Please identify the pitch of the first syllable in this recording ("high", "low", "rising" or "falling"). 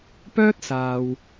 high